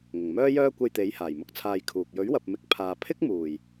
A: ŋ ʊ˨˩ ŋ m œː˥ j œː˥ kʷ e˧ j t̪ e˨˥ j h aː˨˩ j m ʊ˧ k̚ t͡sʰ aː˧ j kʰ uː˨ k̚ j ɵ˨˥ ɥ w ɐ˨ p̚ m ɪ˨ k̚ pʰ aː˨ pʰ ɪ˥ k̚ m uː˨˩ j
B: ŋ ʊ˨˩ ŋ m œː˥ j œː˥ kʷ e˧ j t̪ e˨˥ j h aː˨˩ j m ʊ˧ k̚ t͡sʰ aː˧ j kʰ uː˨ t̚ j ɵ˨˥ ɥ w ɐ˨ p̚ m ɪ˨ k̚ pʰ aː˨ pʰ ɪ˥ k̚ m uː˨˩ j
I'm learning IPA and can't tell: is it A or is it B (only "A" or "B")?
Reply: A